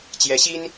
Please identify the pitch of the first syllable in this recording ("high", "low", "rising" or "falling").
rising